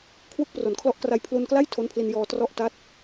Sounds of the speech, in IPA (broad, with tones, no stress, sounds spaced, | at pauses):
kʰ w u˦˥ k̚ p r o˨˩ n kʰ l ɔ˦˥ ʔ k r a˧ j pʰ l u˧ n k l a˥˩ j tʰ o˦˥ n pʰ l i˧ n j ɔː˧ t r ɔ˦˥ ʔ t a˦˥ t̚